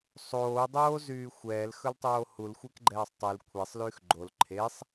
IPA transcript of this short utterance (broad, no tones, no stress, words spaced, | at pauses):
sˤoːdˤoːzyː xʷɛːlxɵltˤoː hulxʷekɡ͡ǃɛːsˤ tˤyl kʷʰesˤlyːx ɡ͡ǃol ǃʰesˤ